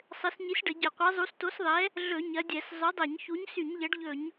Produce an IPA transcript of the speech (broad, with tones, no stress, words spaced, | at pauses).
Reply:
sˤɘ˨˥s ɲi˨˥sɖə˧˩˧ ɟə˧˩˧qʷɛ˨˥zˤu˨˥s to˨˥sðˤɛ˨˥ | ɮɵ˧˩˧ ɲɐ˨˥dʲɛ˧˩˧s zˤɵ˨˥dˤɛ˧˩˧ɲçu˨˥ɲ sy˧˩˧ɲʎɐ˨˥ɖʎɵ˧˩˧ɲ